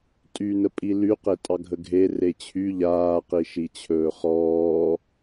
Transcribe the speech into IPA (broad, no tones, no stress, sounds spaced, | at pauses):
tʼ y n ə pʼ i l y q e tʼ ɑ ɡʱ ə ɡʱ e r e t͡ɕʰ y ʎ aː q i ʃ i t͡ɕʰ ɵː χ ɔː